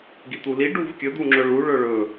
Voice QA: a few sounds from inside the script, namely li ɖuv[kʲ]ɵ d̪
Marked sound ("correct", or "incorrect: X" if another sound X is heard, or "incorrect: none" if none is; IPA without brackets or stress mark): correct